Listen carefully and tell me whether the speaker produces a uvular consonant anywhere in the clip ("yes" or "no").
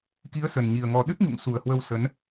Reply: no